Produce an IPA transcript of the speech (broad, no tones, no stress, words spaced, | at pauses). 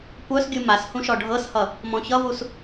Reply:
kʷœsɡʲu mas hũʃɔɖʱɤshʌ | mɔ̃çʌvus